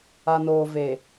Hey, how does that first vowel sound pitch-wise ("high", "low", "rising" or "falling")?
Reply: low